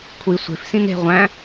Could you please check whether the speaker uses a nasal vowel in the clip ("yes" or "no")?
yes